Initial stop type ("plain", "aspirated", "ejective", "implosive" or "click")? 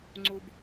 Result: click